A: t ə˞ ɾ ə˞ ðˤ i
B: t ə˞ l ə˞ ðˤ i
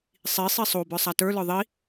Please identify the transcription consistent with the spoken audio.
B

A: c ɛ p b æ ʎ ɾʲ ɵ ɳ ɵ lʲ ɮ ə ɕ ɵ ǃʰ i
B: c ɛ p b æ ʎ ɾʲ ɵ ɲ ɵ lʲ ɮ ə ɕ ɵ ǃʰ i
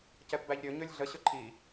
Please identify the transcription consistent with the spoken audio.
B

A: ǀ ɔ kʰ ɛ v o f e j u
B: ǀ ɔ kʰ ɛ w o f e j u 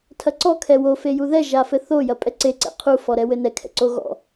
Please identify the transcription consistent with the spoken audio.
B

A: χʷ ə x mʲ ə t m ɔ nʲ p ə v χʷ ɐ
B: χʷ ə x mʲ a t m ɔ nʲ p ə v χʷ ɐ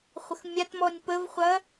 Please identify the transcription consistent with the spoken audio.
B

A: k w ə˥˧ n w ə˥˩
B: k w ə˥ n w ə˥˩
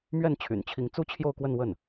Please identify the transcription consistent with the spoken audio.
A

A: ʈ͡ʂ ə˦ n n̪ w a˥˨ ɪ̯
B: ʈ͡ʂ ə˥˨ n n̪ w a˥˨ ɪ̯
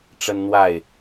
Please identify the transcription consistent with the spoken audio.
A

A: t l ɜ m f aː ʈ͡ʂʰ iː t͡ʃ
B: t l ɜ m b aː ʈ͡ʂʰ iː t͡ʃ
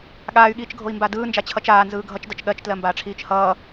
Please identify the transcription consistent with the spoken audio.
B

